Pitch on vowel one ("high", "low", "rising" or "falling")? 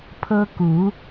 high